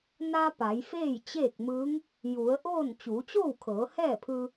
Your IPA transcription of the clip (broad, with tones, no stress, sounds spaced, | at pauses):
n a˧ p a˩˧ j f eː˥˨ j t͡ɕ eː˥˨ k̚ m ɯː˧˥ ŋ | j u˩˧ ə̯ ʔ oː˥˨ n t͡ɕ uː˩˧ t͡ɕ oː˥˨ w kʰ ɤː˩˧ h ɛː˥˨ pʰ ɯː˧